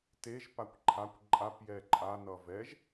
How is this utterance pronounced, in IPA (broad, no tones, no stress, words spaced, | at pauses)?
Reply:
teʒ pakʷǃʰakʷ ǃʼap jɛǃʼa nʌvɛʒ